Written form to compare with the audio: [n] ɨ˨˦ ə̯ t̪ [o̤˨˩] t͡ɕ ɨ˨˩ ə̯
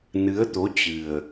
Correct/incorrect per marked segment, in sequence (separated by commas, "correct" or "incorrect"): correct, incorrect